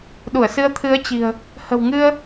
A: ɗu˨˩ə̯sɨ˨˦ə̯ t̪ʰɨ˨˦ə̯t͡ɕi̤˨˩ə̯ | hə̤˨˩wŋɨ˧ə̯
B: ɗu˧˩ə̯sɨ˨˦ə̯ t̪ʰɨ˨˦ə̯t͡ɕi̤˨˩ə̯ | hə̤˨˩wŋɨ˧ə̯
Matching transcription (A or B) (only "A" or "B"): B